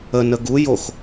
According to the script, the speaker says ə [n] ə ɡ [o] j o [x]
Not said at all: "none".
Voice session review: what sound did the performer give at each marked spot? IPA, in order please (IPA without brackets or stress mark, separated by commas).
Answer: n, u, x